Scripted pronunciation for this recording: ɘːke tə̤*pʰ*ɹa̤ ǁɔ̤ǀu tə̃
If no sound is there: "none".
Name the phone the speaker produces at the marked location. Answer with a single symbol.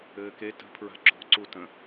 pʰ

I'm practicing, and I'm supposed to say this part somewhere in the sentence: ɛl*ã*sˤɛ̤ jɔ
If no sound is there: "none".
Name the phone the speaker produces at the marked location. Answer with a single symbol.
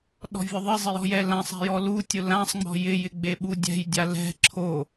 ã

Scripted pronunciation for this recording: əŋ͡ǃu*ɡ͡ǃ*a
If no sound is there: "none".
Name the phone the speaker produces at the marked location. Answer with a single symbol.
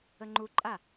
ǃʼ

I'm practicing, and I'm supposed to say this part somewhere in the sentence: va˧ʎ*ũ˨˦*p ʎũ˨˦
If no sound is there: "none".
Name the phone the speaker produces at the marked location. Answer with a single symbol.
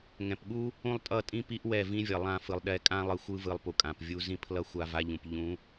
ũ˨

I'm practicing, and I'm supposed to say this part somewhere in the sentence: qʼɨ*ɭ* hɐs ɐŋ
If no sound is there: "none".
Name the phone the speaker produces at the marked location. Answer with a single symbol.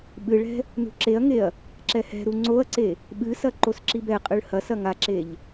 ɭ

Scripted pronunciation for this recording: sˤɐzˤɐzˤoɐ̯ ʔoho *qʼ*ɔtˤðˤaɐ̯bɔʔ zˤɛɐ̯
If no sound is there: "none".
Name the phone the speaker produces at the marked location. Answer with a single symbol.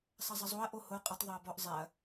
qʼ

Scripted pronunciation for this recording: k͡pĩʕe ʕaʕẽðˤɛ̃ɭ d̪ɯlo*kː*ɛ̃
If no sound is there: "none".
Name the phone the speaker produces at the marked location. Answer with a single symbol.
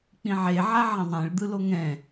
ŋ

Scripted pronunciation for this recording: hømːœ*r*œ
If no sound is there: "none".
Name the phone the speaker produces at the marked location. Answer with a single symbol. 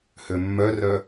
r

